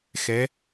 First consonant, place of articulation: velar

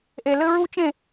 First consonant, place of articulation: glottal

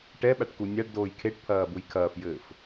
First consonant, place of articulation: retroflex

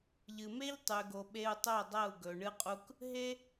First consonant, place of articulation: palatal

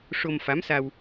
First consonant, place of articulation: retroflex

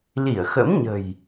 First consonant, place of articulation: alveolar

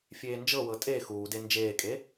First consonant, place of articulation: labial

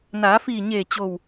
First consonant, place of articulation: alveolar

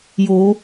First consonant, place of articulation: palatal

